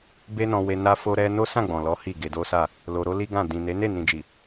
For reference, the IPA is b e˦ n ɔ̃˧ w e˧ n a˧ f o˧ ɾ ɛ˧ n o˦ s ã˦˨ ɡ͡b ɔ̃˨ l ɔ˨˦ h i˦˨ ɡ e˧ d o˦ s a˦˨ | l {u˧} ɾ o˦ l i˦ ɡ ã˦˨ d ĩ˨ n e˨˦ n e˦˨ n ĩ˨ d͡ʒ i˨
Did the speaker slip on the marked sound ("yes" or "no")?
yes